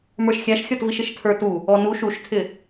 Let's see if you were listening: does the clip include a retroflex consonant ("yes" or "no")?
no